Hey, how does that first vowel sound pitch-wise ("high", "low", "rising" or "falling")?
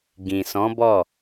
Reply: low